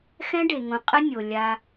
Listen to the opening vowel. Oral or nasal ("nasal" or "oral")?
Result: nasal